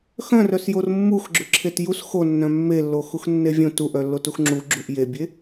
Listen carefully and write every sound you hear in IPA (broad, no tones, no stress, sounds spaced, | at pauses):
x œ̃ r œ s j o r mː u x ɡ͡ǁ ʏ ǁʰ e t j u s x o nː œ̃ mː e lː o x u x nː e vʲ õ t u ʔ œ lː o t u x ŋ͡ǁ u ɡ͡ǁ u ʔ j e bʲ e